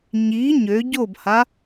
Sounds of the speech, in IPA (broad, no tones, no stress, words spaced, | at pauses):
ɲi ɲø ɟobha